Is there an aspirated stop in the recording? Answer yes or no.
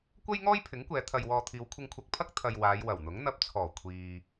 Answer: yes